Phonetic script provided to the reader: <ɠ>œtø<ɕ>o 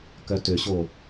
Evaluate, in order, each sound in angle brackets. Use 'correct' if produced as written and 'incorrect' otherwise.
incorrect, correct

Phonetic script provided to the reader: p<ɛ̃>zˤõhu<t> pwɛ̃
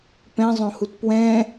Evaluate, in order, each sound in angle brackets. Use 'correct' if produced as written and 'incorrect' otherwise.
correct, correct

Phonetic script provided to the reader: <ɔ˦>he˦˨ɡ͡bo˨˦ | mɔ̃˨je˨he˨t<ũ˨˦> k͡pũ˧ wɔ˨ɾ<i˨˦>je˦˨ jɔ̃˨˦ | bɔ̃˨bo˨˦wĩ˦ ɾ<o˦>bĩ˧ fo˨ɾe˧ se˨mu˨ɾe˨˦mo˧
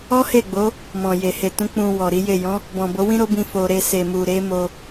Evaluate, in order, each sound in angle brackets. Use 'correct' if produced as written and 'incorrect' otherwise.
correct, correct, correct, correct

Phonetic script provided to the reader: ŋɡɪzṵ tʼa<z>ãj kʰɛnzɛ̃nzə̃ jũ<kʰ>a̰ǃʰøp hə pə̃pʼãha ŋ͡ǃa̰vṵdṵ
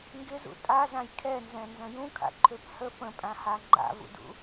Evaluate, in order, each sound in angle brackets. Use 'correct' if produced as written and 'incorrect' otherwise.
correct, correct

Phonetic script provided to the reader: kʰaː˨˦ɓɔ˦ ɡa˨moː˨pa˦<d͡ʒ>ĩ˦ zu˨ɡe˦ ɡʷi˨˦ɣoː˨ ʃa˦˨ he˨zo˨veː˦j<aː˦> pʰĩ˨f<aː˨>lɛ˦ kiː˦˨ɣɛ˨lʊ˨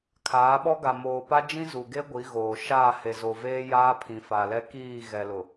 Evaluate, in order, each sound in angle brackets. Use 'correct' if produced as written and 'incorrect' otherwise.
correct, correct, incorrect

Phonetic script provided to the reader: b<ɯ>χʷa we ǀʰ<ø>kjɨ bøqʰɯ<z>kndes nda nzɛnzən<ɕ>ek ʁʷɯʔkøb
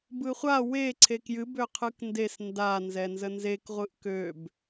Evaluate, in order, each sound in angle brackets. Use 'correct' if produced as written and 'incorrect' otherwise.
correct, incorrect, incorrect, incorrect

